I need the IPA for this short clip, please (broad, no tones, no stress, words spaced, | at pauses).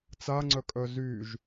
t͡saŋ͡ǀœkʼœ zyʒ